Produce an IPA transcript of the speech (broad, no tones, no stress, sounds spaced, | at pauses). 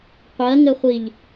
qʷ ɜ ŋ ɘ χʷ i ʎ